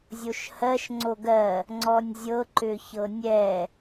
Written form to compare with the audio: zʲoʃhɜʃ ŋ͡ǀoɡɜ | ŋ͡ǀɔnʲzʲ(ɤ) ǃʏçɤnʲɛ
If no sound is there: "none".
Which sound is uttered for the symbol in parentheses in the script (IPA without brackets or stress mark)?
ɤ